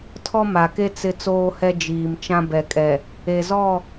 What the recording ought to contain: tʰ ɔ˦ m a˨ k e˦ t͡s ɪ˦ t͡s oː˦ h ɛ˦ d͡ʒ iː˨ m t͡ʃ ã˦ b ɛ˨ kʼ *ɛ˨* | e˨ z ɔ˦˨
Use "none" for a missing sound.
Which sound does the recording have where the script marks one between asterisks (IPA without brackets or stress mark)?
ɛ˨